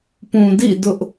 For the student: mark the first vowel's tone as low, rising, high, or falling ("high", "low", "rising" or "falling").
low